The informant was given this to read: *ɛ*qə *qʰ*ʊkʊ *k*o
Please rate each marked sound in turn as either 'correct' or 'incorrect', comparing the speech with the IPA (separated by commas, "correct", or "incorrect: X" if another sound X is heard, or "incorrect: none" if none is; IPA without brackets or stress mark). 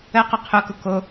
incorrect: ə, correct, correct